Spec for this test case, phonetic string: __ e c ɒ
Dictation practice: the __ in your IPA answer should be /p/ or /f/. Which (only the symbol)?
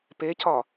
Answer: p